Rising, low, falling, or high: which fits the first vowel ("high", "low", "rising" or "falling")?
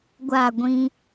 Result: falling